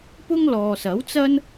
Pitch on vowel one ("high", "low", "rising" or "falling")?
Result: high